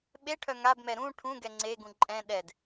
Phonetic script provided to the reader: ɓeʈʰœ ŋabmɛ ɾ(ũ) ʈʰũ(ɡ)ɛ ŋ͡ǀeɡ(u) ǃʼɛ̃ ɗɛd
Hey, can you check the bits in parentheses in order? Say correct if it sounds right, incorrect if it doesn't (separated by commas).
correct, correct, incorrect